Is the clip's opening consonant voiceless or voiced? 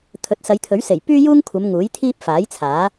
voiceless